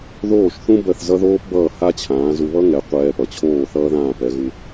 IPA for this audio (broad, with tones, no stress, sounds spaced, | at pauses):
ð oː˥˩ ʃ θ ũ˥ b ɜ˥˩ θ z ʌ˥ ð oː˥ p b ʌː˥˩ h a˥ t͡ɕʰ ãː˩˥ z u˧ β ʌ˥ ŋ ɛ˩˥ qʷ ɛː˧ p ʌ˩ t͡ɕʰ oː˥˩ θ ʌː˥ ð ãː˥˩ p ɛ˩˥ ɣ u˧